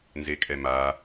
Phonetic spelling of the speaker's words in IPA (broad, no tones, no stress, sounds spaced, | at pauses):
n z e kʼ ɛ m a